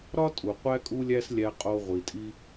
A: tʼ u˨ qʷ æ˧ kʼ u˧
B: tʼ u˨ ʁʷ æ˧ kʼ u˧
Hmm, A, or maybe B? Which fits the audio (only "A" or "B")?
A